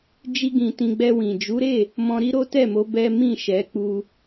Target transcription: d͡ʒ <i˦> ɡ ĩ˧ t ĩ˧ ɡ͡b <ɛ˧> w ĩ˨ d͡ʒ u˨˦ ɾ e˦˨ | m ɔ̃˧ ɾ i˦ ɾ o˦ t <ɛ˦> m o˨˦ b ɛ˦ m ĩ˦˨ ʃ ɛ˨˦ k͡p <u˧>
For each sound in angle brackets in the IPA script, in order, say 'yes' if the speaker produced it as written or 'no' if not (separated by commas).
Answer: yes, yes, no, yes